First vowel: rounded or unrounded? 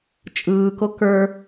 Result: unrounded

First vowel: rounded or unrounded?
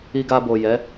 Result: unrounded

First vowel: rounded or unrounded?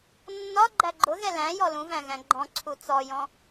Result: rounded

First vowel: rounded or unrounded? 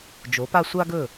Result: rounded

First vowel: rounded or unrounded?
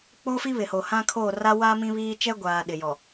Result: rounded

